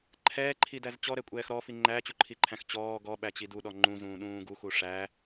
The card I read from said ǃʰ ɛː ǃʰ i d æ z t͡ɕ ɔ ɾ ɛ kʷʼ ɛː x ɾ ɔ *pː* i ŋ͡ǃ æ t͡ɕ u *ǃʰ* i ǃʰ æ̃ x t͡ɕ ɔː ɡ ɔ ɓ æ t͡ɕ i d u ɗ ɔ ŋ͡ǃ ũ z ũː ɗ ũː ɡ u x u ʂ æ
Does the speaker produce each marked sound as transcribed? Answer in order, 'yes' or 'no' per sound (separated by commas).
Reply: no, yes